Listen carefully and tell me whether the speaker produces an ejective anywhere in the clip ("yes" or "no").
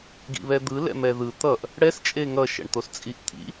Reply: yes